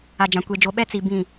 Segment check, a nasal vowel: present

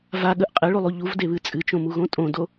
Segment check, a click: absent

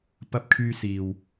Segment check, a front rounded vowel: present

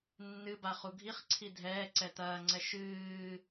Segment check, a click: present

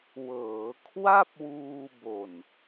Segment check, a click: absent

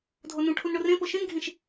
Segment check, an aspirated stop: present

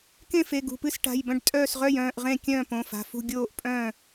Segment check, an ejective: present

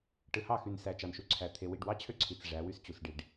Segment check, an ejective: absent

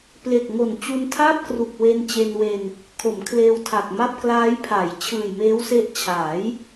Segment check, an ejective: absent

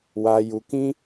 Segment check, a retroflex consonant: absent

